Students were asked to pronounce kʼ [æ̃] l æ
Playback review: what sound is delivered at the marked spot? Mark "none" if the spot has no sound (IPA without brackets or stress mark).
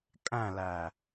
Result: æ̃